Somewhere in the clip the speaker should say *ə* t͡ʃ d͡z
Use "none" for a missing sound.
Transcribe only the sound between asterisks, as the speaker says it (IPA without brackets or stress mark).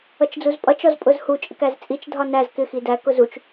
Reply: ʌ